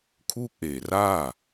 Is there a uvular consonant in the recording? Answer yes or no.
no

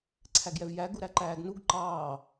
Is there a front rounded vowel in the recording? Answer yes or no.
no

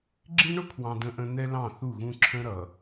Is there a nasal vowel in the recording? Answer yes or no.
yes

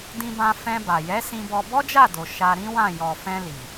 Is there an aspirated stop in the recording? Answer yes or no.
no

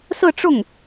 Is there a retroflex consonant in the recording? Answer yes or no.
yes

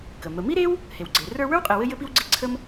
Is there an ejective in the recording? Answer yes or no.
yes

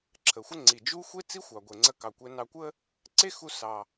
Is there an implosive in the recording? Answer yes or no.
no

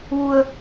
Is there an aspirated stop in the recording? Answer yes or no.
no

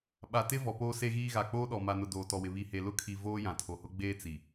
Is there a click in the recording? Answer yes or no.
no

